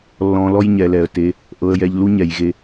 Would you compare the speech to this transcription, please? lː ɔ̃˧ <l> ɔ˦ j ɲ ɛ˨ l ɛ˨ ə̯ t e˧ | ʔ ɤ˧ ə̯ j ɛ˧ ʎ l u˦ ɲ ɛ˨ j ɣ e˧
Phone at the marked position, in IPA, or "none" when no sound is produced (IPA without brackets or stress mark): l